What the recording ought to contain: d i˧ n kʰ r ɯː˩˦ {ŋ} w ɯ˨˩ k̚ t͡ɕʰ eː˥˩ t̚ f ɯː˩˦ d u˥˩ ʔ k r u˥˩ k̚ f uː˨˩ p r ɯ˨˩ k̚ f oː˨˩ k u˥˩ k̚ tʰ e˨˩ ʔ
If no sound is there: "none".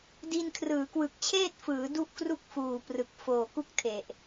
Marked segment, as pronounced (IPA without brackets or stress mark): k